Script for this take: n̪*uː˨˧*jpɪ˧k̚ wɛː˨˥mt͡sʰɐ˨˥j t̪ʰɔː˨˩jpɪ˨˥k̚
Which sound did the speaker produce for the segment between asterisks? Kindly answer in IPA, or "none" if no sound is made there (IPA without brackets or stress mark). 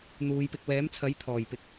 uː˨˧